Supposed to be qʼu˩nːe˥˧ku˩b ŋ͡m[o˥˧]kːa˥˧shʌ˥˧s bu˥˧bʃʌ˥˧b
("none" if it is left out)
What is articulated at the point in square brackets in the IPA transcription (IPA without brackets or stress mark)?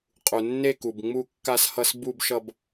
u˥˧